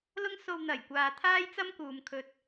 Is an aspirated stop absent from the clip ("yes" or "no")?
no